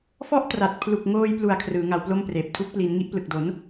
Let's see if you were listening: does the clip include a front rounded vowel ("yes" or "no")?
no